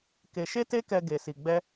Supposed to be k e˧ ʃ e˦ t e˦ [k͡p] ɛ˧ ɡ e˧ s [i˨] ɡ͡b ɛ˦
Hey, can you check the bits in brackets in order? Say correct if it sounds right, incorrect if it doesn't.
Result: incorrect: k, incorrect: i˧

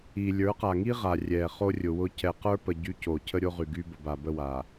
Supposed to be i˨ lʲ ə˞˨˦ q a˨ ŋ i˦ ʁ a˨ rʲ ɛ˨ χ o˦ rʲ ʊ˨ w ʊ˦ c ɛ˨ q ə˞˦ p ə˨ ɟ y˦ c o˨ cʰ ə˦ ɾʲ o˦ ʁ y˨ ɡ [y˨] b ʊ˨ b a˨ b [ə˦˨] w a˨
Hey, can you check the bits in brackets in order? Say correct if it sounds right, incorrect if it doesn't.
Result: incorrect: y˦, correct

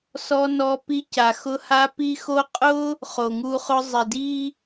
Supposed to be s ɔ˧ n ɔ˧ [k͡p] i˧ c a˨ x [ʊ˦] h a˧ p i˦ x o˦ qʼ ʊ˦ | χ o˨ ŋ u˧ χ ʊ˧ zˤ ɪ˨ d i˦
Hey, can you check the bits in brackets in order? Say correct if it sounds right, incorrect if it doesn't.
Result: incorrect: p, incorrect: ʊ˧

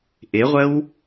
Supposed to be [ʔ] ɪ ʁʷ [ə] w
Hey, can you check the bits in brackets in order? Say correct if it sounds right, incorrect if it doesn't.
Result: correct, correct

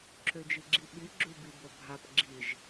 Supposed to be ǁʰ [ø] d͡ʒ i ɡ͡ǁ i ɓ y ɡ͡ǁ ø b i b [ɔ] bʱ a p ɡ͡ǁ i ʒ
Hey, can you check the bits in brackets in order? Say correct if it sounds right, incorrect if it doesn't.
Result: correct, incorrect: o

